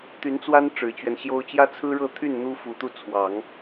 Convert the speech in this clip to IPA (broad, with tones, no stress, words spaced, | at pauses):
t̪y˧˥nt͡swa˥n ʈ͡ʂɻ̩˨˩t͡ɕɥɛ˦nɕjo˥ʊ̯ t͡ɕjä˥t͡sʰɹ̩˥ɻɤ˥˧ t̪ʰy˥˩n n̪u˥ fu˨˩t̪u˥˩ t͡sʰwɑ˨˩˦ŋ